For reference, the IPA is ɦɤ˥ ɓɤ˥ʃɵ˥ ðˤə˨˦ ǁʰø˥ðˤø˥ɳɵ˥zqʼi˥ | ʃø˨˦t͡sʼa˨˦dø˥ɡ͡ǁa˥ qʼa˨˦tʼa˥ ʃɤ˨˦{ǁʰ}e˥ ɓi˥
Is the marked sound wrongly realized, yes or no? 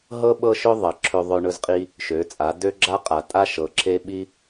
no